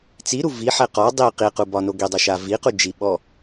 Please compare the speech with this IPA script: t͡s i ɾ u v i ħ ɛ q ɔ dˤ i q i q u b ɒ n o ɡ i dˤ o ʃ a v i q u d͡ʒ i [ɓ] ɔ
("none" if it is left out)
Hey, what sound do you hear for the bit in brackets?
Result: ɓ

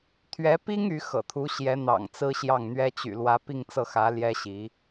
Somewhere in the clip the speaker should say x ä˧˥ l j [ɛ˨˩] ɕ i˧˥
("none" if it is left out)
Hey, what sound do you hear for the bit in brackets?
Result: ɛ˥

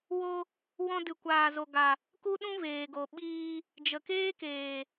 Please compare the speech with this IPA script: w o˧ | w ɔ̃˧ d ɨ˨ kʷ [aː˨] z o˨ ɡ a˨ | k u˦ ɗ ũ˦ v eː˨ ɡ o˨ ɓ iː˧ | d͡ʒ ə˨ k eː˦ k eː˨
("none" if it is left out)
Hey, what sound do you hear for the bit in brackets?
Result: aː˨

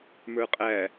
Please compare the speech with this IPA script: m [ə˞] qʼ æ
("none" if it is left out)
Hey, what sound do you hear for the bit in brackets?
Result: ə˞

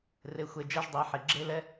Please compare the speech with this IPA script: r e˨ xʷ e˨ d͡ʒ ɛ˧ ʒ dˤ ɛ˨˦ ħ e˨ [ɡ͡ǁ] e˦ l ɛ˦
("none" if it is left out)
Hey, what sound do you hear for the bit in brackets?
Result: ɡ͡ǁ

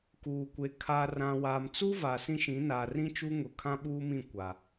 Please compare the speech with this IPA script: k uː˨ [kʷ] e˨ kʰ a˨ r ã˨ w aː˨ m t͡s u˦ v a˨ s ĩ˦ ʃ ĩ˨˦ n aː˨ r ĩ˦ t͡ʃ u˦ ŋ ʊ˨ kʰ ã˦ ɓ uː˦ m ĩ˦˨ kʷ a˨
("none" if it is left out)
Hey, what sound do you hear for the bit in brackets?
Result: kʷ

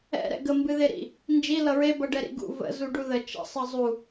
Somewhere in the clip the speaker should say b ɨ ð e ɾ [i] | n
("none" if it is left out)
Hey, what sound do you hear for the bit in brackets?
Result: ḭ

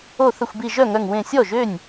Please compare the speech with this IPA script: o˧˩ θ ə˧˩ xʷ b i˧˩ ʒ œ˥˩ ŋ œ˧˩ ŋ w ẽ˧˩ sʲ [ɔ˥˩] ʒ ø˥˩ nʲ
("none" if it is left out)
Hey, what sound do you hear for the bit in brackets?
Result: ɔ˥˩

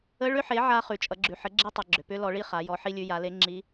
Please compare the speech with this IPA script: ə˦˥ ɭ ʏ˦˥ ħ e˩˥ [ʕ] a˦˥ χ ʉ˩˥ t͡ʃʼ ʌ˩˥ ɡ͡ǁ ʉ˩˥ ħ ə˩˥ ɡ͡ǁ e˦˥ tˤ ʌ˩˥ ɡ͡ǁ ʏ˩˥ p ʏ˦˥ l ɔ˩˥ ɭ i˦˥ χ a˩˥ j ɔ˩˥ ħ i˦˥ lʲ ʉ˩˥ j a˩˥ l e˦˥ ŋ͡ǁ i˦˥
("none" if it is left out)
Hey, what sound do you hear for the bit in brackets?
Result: ʕ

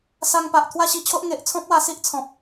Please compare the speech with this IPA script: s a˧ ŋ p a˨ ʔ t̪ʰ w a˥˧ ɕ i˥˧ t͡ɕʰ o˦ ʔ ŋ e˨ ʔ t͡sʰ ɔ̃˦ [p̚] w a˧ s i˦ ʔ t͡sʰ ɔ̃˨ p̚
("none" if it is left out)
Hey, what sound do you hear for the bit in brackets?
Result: p̚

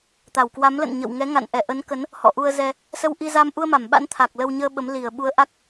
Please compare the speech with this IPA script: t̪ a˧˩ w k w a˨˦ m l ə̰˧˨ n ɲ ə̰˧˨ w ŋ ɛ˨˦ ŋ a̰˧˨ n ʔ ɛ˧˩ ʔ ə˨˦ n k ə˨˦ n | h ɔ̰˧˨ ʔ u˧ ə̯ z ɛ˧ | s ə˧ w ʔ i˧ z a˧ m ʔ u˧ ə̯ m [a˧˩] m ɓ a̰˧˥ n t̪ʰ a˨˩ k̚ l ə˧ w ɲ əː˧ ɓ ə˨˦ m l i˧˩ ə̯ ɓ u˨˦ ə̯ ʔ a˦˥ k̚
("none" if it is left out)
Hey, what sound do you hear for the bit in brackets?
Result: a˧˩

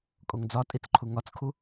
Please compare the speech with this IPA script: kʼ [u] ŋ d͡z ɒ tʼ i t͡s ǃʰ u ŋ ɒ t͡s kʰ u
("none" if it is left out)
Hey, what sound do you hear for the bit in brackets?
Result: o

